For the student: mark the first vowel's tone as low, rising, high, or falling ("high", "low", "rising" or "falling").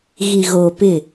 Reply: low